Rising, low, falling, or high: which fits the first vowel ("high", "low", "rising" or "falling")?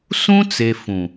high